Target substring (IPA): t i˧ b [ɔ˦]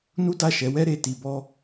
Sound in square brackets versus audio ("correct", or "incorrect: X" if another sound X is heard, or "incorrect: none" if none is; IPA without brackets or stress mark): correct